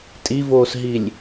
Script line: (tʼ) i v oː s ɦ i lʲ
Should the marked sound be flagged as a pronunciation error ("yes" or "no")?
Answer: no